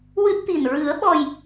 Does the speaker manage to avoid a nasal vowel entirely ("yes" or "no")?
yes